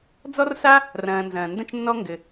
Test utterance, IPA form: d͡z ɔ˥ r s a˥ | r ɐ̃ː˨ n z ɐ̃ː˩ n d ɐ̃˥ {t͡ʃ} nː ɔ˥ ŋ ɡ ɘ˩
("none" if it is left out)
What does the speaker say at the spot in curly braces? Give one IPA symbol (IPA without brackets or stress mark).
t͡ʃ